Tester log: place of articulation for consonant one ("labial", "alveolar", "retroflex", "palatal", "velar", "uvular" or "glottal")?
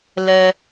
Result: alveolar